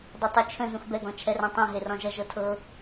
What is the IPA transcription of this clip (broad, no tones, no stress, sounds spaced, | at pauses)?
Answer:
dˤ e tˤ u t͡ʃʰ ə̃ z ũ x b ɛ ɡ ɔ̃ t͡ʃʰ ɛ r ã tˤ ã ɦ e r ɔ̃ ʒ ʌ ʒ ɤ tʰ ɤ